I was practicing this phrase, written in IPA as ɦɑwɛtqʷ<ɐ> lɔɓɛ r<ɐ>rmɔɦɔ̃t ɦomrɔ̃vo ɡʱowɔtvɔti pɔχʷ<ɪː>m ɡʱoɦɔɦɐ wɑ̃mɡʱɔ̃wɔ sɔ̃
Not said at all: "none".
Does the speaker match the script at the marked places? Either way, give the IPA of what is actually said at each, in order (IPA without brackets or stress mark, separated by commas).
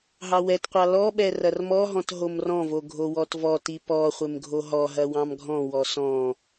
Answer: ɑ, ɐ, ɪ